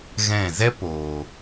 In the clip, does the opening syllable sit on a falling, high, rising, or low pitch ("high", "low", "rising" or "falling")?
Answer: falling